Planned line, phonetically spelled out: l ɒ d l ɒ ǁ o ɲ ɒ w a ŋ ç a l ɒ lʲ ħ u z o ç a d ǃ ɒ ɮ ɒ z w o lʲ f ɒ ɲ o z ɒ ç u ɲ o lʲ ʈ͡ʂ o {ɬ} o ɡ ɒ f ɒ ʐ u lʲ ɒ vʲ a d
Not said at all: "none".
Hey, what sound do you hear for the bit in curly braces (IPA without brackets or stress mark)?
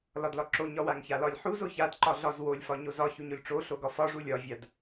ɬ